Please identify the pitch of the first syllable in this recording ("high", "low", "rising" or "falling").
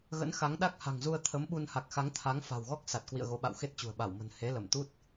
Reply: rising